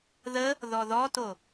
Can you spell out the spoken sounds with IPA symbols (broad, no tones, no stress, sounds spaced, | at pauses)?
ð ə | ð ɔ ð ɔ t o